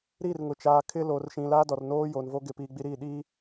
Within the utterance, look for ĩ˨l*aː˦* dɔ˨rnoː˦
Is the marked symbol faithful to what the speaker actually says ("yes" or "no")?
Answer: yes